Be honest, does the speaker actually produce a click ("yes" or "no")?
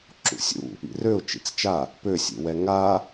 yes